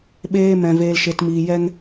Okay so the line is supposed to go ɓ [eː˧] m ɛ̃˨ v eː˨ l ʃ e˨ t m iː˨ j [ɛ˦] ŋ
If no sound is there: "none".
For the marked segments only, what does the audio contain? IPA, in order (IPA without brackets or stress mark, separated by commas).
eː˧, ɛ˧